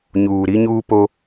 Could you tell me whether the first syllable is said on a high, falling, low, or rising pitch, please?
low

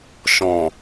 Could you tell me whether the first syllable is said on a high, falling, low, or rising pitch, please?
low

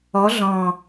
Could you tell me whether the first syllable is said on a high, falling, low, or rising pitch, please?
rising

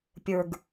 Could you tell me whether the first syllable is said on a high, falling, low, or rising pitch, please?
low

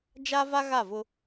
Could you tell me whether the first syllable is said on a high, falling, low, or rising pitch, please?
high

